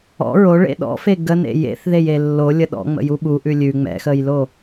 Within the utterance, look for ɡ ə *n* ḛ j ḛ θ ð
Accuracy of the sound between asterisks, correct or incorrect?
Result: correct